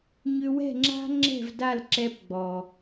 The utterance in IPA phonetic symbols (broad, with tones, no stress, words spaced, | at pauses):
ɲʏ˦ wɛ̤˦˨ŋ͡ǁa̤˦ŋ͡ǁɛ̤˦˨vda˦˨l ǁɛ˦pɡ͡bɔ˨